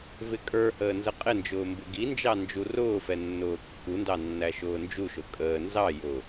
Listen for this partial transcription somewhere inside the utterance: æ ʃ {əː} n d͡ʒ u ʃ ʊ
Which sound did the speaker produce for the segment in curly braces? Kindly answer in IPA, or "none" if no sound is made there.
ʊː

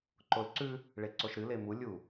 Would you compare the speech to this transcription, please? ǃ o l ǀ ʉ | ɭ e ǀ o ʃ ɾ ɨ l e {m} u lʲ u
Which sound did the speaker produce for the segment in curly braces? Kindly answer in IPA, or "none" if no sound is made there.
m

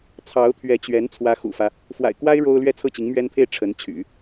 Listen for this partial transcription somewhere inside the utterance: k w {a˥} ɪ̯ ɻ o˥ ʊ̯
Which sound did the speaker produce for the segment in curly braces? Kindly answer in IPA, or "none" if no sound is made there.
a˥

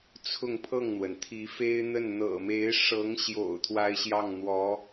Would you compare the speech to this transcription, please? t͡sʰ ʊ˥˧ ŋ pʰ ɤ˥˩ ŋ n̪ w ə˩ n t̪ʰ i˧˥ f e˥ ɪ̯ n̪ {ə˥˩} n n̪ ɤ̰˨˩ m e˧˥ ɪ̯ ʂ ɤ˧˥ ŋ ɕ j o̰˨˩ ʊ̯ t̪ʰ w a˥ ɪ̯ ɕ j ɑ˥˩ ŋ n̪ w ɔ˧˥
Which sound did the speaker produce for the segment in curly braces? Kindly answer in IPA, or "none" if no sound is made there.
ə˥˩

